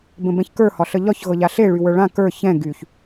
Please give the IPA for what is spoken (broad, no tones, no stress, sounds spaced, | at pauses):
b ə̃ b ɛ̃ ç k ə˞ h ɒ ɬ ə ʎ ɒ ç ɣ ɤ ʎ a ɬ e ɭ y w ə˞ ɭ ã k ə˞ ç ɛ̃ ɡ y ç